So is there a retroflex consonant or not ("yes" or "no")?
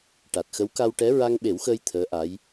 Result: yes